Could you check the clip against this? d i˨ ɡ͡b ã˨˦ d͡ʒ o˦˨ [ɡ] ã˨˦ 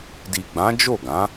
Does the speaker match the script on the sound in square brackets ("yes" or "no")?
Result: yes